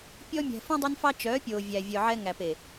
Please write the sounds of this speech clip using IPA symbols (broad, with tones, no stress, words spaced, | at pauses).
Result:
pʲɔ˧mʲæ̤˨ fũ˦dˤe˦nfɑ˦ t͡ʃœː˨˦pʲoː˨ vʲæ˨vʲœ˨ʕɛ˧ ŋæ˨pe˨